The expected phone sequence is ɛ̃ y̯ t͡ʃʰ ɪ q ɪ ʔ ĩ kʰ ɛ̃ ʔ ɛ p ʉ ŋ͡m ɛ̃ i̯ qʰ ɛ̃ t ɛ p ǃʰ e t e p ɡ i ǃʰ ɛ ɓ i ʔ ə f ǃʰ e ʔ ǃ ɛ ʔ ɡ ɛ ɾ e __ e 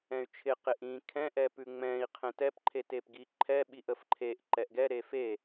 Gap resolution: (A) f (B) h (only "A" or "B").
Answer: A